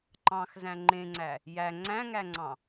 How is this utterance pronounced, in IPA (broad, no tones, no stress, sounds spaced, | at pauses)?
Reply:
ǃ ɑ̃ x z æ̃ ŋ͡ǃ ẽ ŋ͡ǀ æ | j æ ŋ͡ǀ æ̃ ŋ æ ŋ͡ǀ ɑ̃